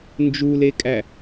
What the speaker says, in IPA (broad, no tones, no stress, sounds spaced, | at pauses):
n d͡ʒ u l e kʼ æ